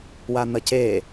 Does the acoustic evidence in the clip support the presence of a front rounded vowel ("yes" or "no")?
no